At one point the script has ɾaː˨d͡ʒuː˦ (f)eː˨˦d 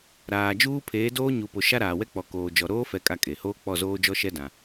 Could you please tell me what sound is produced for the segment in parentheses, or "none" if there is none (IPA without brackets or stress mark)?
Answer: pʰ